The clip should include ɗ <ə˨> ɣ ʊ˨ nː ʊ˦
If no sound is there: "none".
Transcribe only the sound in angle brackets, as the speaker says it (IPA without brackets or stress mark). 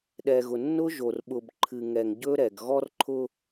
ɛ˨